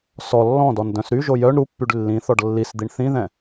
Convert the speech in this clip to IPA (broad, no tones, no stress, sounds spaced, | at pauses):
s ɔ lː ɔ̃ d ɔ n d œ̃ s ɾ y ʒ o j œ ɳ ɾ u pː y ɖ lː ĩ θ ɔ ɖ lː i s d̪ i ɳ θ ĩ ð ɛ̃